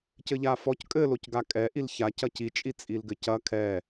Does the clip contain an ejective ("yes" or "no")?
yes